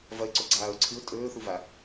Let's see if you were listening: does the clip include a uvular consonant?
no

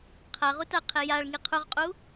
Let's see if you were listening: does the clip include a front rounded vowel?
no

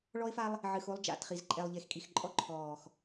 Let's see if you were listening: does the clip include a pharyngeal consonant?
yes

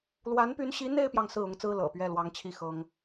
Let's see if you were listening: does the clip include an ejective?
no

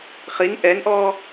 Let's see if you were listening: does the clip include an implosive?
no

